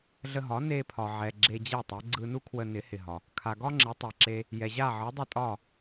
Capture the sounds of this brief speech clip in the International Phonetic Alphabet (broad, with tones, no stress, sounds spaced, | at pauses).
ɮ ə˧ ɦ ɒ˩˥ n e˧ pʰ ɒ˩ ʕ ɛ˩ ɡ͡ǁ e˧ d͡ʑ ɛ˥˩ tˤ ɛ˩˥ ɡ͡ǀ ɯ˧ n u˥ kʰ w ə˧ n ɪ˩˥ h ɪ˩ ɦ ɒ˩ | kʰ a˩ ɡ ɒ˥ ŋ͡ǁ e˩˥ tˤ ɛ˩ ǁ e˧ | j ɛ˩ ʑ a˥˩ ʕ ɯ˩˥ dˤ ɪ˥˩ tʼ ɒ˥˩